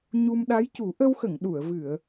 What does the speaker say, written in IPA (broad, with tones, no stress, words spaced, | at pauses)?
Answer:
ɲu˧m ɗa˧˥jcu˨˩˦ ʔə˧wxə˨˩˨ŋ ɗu˨˩˨ə̯vɨ˨˩˨ə̯